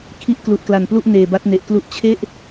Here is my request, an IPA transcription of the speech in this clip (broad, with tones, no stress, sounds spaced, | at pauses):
kʰ i˦˥ ʔ k l u˨˩ ʔ k l a˨˩ n p l u˥˩ ʔ n eː˨˩ b a˦˥ t̚ n e˨˩ ʔ k l u˥˩ ʔ t͡ɕʰ e˥˩ ʔ